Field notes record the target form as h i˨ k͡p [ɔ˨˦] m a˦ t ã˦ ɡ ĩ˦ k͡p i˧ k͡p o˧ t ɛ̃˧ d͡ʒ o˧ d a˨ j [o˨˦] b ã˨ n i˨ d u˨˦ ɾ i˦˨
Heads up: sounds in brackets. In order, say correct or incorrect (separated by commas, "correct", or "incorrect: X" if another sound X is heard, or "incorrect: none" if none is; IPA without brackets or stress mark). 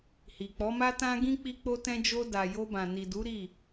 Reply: correct, incorrect: o˧